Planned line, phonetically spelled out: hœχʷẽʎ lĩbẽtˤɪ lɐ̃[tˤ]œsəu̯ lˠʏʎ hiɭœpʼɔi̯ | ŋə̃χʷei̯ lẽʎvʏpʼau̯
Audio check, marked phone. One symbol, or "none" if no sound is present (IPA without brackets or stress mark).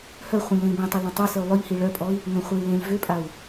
tˤ